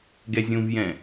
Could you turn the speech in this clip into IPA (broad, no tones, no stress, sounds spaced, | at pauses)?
ɡ ɛ zʲ ũ v j ɛ̃